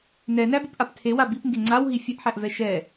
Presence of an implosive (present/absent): absent